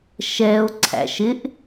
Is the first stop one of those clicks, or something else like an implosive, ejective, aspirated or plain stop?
click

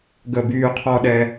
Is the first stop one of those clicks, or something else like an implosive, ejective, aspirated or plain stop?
plain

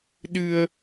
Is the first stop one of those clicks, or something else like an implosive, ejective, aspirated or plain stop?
implosive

